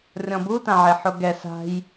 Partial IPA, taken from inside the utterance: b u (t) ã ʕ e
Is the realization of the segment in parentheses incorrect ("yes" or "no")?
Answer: no